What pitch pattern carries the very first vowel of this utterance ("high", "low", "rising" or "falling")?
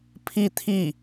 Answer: falling